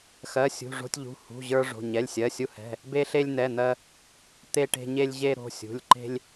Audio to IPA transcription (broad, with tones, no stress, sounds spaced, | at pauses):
x ɜ˩˧˩ sʲ ṳ˩˧˩ ʐ o̤˧ tʲ ʎ ṳ˩˧˩ h ṳ˩˧˩ ʑ ə˞˧ ʐ o̤˩˧˩ ɲ ɛ˩˧˩ lʲ sʲ ɜ˩˧˩ sʲ u˧ h ɛ̤˩˧˩ | b e˧ ɬ e˧ lʲ n̪ ɛ˩˧˩ n̪ ɜ˧ | t̪ e˧ ʈ e̤˧ ɲ e˧ lʲ ʑ e˧ ɾ o̤˩˧˩ sʲ ṳ˩˧˩ lʲ ǃ e̤˧ lʲ